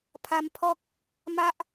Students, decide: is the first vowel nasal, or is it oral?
oral